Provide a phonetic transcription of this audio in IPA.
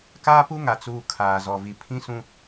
kaː˦pu˦ŋa˨ t͡suː˨ kʰaː˨zɔ˨vi˨ pʰĩ˦sũ˦

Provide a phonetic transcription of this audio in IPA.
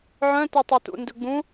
ʕœ̃ tɛtˤɛtṵ ndɵɡ͡bũ

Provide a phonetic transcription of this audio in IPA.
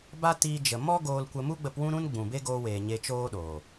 ba˦tiː˧d͡ʒə˨ mɔ˦ ɡoː˧lkʷə˧ mu˦ɡ͡bə˧pwũ˦ɾũ˦n ɡ͡bũ˨be˦ɡoː˧weː˨ ɲe˧t͡ʃoː˦ɗoː˨

